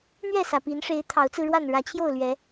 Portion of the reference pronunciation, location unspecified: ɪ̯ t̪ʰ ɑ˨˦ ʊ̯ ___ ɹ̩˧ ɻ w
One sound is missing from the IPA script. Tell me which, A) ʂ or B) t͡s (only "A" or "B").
B